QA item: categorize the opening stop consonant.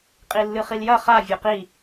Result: ejective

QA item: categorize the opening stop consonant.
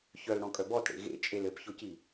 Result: ejective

